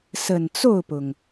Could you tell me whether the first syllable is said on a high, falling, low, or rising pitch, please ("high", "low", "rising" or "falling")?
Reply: low